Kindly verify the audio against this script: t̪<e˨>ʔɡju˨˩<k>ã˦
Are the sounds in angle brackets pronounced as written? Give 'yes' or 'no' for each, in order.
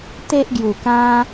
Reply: no, yes

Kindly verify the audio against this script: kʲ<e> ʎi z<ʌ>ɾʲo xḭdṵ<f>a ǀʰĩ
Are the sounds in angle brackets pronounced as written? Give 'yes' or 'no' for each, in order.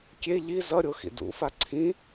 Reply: yes, yes, yes

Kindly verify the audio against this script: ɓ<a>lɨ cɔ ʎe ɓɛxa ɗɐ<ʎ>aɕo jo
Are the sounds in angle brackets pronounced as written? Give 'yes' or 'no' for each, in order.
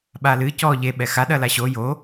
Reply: yes, no

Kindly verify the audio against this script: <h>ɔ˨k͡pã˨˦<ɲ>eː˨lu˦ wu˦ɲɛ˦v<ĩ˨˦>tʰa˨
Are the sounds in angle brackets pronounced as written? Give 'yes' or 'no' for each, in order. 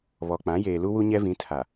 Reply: no, no, yes

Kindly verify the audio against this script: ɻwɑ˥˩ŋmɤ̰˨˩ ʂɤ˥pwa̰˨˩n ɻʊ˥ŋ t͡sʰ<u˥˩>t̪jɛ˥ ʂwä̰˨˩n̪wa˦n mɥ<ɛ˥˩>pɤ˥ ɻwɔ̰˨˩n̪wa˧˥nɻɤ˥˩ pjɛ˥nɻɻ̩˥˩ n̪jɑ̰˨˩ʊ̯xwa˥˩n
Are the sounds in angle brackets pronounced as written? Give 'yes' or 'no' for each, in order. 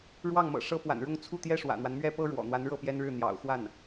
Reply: yes, no

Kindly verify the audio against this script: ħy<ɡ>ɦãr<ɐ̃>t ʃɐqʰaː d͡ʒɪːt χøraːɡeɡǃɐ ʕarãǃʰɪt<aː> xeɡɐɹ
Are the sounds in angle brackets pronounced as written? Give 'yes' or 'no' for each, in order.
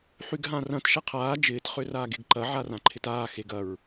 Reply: yes, yes, yes

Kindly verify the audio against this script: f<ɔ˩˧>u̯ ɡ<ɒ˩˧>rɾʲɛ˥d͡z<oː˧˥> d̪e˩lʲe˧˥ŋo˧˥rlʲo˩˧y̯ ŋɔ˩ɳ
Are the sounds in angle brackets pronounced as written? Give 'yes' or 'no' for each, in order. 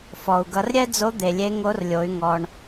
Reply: no, no, no

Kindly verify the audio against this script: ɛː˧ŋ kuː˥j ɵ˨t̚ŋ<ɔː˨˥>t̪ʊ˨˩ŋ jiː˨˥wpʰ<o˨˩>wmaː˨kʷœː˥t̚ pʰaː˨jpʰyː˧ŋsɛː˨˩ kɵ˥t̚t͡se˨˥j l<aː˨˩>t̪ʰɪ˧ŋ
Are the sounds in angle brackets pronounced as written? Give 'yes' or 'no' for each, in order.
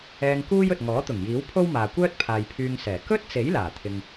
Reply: yes, no, yes

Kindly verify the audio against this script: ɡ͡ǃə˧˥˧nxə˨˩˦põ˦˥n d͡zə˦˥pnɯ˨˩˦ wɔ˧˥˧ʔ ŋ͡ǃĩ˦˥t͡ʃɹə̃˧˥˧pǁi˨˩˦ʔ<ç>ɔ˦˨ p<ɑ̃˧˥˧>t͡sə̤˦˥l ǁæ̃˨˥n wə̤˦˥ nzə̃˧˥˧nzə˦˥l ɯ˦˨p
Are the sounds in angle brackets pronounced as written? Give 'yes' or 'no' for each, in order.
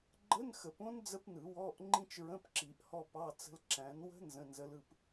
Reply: no, no

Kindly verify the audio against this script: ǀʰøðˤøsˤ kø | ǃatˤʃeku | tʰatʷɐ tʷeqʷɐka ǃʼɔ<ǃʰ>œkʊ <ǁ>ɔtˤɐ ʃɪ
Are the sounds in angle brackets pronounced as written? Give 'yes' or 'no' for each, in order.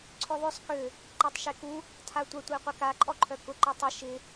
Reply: yes, no

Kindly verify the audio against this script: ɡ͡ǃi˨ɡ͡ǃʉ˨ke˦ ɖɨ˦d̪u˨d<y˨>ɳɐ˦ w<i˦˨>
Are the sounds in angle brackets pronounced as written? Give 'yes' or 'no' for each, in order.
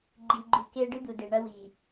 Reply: no, no

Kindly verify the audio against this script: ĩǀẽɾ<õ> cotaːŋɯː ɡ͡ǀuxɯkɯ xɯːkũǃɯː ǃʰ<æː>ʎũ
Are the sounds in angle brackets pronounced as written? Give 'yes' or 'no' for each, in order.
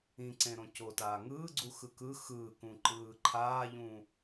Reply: yes, no

